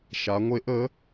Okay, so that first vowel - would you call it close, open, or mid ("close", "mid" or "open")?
open